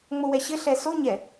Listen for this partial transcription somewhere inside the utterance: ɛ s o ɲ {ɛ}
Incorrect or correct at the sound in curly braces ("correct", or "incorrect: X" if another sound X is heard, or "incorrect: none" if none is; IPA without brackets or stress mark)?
correct